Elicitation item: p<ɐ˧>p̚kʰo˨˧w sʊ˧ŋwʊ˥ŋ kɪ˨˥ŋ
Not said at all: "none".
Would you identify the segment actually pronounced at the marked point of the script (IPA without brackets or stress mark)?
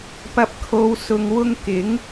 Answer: ɐ˧